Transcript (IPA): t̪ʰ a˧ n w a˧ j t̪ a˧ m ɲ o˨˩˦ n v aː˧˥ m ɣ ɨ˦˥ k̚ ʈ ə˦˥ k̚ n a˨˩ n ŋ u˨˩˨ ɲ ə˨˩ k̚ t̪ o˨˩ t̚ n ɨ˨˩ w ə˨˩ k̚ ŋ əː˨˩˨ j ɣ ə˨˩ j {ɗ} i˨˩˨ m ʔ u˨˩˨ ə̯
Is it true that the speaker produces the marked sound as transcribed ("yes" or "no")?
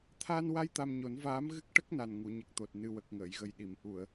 yes